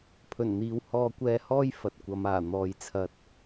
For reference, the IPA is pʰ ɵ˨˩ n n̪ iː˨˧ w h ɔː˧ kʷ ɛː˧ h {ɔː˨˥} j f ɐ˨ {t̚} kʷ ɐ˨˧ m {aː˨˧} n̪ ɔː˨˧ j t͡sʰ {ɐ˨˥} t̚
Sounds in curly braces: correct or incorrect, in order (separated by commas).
incorrect, correct, incorrect, incorrect